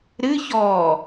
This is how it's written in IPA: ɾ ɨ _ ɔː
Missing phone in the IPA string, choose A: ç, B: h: A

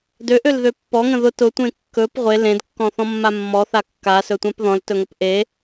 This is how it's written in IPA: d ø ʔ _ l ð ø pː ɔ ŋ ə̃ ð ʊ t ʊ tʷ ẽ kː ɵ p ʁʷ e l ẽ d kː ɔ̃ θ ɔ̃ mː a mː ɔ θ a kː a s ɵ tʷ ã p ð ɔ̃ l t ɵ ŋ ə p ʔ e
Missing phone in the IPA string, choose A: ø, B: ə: A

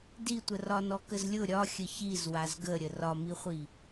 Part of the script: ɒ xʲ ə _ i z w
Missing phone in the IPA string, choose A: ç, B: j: A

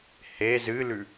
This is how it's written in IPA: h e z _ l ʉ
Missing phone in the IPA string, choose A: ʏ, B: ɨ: B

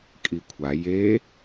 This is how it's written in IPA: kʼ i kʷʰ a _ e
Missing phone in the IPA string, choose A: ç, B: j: B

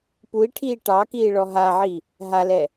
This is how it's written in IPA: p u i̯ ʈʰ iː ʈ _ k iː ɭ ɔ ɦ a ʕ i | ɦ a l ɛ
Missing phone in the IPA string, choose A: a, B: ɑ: B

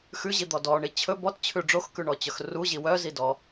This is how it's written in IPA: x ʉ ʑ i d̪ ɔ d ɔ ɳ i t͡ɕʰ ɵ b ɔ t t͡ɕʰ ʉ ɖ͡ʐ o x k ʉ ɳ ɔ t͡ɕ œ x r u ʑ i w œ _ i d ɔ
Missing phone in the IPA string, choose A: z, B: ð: A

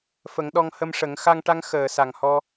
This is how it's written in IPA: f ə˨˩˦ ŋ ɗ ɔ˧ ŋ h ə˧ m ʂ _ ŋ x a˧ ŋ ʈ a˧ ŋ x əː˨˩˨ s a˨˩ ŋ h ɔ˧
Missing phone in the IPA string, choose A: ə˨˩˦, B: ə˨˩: A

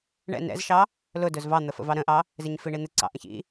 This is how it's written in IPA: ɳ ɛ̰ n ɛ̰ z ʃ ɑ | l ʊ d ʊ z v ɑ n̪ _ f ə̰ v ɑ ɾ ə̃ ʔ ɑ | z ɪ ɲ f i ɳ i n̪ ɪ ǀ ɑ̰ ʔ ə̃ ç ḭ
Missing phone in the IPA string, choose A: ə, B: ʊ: A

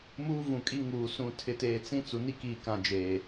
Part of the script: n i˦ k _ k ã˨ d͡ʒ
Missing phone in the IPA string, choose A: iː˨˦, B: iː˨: B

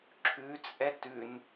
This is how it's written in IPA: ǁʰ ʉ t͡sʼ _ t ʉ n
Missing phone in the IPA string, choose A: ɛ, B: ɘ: A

